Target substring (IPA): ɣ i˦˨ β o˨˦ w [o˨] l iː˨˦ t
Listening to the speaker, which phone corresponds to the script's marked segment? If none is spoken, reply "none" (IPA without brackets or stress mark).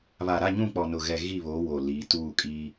o˨